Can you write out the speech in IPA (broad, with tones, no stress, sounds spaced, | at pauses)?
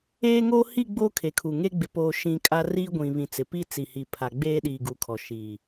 eː˦ ŋ oː˦ h i˦˨ ɡ͡b oː˦ kʰ e˨ kʰ u˨ ŋ e˦ ɡ͡b ɪ˨ p oː˨ ʃ ĩ˨ kʼ a˦ r iː˦ ɡʷ ĩ˨ β ĩ˨ t͡s ɪ˨ p i˦ t͡s i˨ h i˨ pʰ a˨ ɡ͡b eː˦ ɗ iː˨ ɡ u˨ kʰ ɔ˨ ʃ iː˨